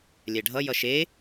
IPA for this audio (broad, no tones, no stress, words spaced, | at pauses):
lʲɛɖʱʌjʌ ʃe